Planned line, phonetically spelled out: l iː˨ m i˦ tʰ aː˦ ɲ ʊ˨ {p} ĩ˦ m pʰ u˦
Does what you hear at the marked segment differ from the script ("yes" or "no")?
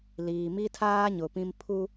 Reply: no